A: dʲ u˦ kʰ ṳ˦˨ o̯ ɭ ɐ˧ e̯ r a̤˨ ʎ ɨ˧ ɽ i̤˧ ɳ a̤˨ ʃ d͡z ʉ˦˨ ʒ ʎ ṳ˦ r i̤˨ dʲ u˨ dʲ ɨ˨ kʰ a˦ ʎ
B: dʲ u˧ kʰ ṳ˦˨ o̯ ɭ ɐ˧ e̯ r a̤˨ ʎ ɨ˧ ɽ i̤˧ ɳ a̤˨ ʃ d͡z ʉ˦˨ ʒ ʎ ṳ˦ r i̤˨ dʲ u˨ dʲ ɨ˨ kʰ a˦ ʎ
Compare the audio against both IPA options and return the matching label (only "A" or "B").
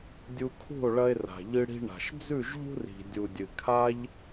B